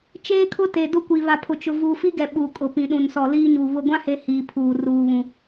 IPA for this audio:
t͡ʃ eː˦ kʰ ʊ˦ t e˨ d ʊ˦ kʷ i˨ β a˨ pʰ ʊ˨ t͡ʃ ʊ˨ v uː˨ f i˦ ɡ ɛ˨ ɓ uː˨ kʼ ʊ˨ p ĩ˨ ɗ ũ˨ n s ɔ˨ l iː˦ ɲ u˨ β ʊ˨ ɡʷ ã˦ h e˨ h iː˨ pʰ uː˨ r uː˨ β ũ˨

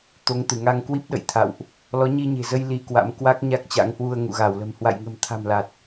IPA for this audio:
t̪ o˨˦ ŋ t̪ ɨ˧˩ ŋ a˧ ŋ k w i˦˥ p̚ ɗ ə̰˧˨ j t̪ʰ a̰˧˨ w ʔ | l ɔ˨˦ ɲ i˧ ɲ e̤˨˩ z ə˧ j l i˧ k w a̰˧˥ m k w a˦˥ k̚ ɲ a˦˥ k̚ t͡ɕ a̰˧˥ ŋ h w u˧ ə̯ ŋ ṵ˧˨ ɣ a˧˩ w l ə̤˨˩ m h w a̰˧˨ j ŋ ə̤˨˩ m t̪ʰ a̤˨˩ m l a˨˩ t̚

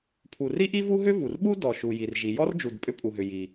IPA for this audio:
pʰ u˩ r i˥ ʔ i˥ v u˥ ɦ ʏ˥ v u˩ r ɓ u˥ d ɔ˩ ʃ u˩ j i˩ r ʒ i˩ j ɔ˥ r d͡ʒ u˩ d pʼ ʏ˥ pʼ u˩ ɦ ʏ˩ j i˩

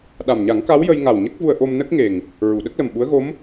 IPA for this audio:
ɗ a˨˩ m ɲ a˨˩˦ ŋ k a˧˥ w j ə˧ j ŋ a˨˩ w ɲ ə˦˥ k̚ v u˧ ə̯ ʔ o˧ m n ə˦˥ k̚ ŋ e˨˩ ŋ | ɹ u˨˩˨ ɗ ə˦˥ k̚ l ə˨˩ m ɓ u˧˥ ə̯ ɣ o˧˥ m

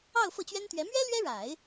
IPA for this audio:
ɑ˥˧ ʊ̯ f ɤ˥˩ t͡ɕ ɥ ɛ˥ n t̪ ɥ ɛ˧˥ m ɥ ɛ˥ l ɥ ɛ˥ ɻ a˨˩˦ ɪ̯

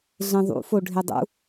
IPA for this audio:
ɮ ẽ ðˤ ṵ f o ɖʱ e dˤ ṵ

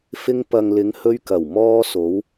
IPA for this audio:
f ɪ˧ ŋ p ɐ˨ ŋ l ɪ˨˧ ŋ h ɵ˧ ɥ k ɐ˨˩ w m ɔː˧ s o˨˧ w

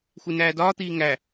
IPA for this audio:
xʷ e n æː d ɒː t̪ iː ŋ æ

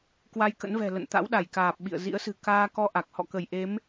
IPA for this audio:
k w a˧ j k ə̰˧˥ n v ɛ̤˨˩ l ə̰˧˨ n t̪ a̰˧˥ w ɗ a˧˩ j k aː˨˩ p̚ ɓ ḭ˧˨ ə̯ z ḭ˧˥ ə̯ s ɨ̤˨˩ k aː˧ k ɔ˧ ʔ a˨˩ k̚ h ɔ̰˧˨ k ə˧˩ j ʔ e˨˦ m

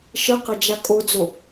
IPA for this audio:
ʃ ə q ɐ d͡ʒ a kʼ o d͡z o

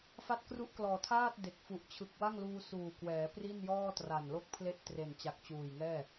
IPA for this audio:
f a˥˩ t̚ k r u˥˩ ʔ k l ɔː˨˩ tʰ aː˥˩ t̚ d e˨˩ k̚ f u˨˩ ʔ t͡ɕʰ ɯ˨˩ k̚ w a˥˩ ŋ l uː˧ s uː˨˩ k w ɛː˩˦ p r i˥˩ n j ɔː˥˩ t r a˨˩ n l o˥˩ k̚ pʰ l e˥˩ ʔ t r e˨˩ n t͡ɕ a˨˩ k̚ t͡ɕ uː˨˩ j ŋ ɛː˥˩

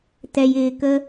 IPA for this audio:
t ɛ˧ j ɪː˧ k ə˦

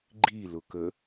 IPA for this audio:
ɡ͡ǃ i l ʊ k ə

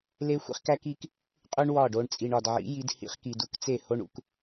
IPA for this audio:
l e˦ xʷ ḭ˦ χ k æ˦ k i˦ k | qʼ u˦ ɳ w ɒ˦˨ ɖ o˧ ɳ t͡sʼ i˨ ɳ ɒ˨ d ʕ ḭ˨˦ j i˧ d h ḭ˧ χ k i˨ d u˧ k t͡s e˦˨ h o˦ ɳ ṵ˧ k

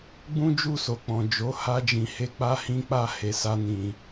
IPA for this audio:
ɡ͡b ũ˦ d͡ʒ u˦˨ s o˨ k͡p ɔ̃˨ d͡ʒ o˨˦ h a˦ d͡ʒ ĩ˧ h e˦ k͡p a˦ h ĩ˦ k͡p a˦˨ h e˨˦ s a˦ n ĩ˧

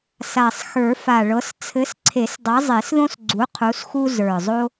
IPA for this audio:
s a˨˩ sˤ x ə˞˨˩˦ f a˨˩ ɭ ɤ˨˥ s t͡sʰ ɘ˨˥ s ǀʰ e˨˩˦ s dˤ a˨˥ zˤ e˨˩˦ s ð õ˥ s ɡ͡ǀ u˨˥ qʰ u˨˥ s x u˥ z ə˞˨˩ zˤ o˥

